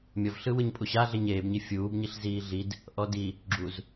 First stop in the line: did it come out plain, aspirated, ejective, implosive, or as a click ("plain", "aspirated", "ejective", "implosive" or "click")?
ejective